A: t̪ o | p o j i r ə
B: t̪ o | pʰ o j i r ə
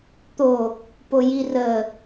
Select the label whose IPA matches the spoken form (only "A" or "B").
A